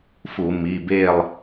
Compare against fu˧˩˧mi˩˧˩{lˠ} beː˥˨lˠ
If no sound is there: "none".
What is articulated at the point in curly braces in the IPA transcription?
none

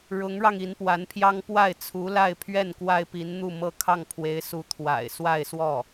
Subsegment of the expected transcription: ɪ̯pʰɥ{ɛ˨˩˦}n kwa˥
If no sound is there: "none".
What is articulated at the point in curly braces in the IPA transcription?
ɛ˥˩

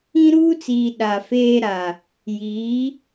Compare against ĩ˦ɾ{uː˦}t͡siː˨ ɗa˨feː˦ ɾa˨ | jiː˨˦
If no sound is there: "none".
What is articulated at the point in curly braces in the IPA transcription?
uː˦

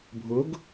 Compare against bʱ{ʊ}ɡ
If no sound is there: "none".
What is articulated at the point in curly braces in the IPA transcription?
ʊ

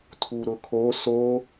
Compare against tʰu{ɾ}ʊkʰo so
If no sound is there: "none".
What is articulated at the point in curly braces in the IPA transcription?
ɾ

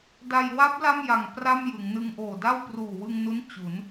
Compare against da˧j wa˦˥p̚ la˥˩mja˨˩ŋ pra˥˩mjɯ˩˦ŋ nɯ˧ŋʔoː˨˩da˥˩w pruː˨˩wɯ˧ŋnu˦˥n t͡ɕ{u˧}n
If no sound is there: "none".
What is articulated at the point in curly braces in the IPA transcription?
u˩˦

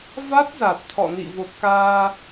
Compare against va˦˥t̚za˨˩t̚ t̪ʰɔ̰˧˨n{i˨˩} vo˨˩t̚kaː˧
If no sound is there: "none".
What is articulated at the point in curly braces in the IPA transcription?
ḭ˧˨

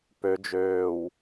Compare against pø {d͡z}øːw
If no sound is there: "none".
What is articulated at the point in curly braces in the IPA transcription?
d͡ʒ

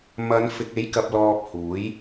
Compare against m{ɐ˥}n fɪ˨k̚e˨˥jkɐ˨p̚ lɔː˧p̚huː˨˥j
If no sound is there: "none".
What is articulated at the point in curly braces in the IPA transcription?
ɐ˨˧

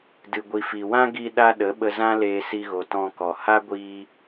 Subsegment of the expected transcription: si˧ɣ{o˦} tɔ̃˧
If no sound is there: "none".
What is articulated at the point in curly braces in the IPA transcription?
o˨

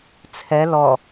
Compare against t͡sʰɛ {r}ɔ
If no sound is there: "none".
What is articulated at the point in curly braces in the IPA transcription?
l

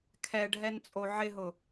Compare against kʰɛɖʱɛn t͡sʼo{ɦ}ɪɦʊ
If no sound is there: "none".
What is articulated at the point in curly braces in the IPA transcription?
ʕ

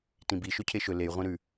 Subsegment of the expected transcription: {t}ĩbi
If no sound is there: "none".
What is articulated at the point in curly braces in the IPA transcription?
t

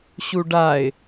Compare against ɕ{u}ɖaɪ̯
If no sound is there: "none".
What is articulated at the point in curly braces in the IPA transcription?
u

